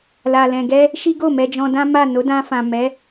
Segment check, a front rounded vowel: absent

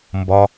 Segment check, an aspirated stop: absent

